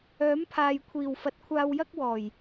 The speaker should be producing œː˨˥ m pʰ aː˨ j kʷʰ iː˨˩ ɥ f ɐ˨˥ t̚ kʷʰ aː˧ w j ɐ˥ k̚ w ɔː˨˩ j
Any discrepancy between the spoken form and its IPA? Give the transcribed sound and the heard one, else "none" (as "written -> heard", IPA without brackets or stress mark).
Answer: ɥ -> w